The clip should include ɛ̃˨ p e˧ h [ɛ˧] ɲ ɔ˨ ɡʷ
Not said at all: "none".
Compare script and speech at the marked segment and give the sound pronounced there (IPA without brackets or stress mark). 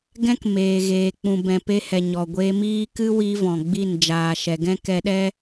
ɛ˨